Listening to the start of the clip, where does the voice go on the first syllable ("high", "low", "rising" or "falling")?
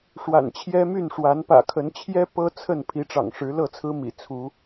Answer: low